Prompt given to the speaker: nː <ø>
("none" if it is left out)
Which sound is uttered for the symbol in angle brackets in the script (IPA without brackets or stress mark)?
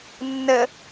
ə